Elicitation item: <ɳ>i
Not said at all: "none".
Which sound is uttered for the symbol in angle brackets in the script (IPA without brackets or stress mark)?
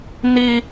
n̪